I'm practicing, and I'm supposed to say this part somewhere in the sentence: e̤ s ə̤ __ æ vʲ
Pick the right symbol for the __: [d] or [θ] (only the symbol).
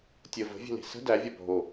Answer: d